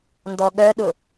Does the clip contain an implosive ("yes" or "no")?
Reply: yes